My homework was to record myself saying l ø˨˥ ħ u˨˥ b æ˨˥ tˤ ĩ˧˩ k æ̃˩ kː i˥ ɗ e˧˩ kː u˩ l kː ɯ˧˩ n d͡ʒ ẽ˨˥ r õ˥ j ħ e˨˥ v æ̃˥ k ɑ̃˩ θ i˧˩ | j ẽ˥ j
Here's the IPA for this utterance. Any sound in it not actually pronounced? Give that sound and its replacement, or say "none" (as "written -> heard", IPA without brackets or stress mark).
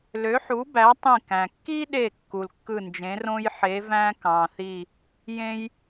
none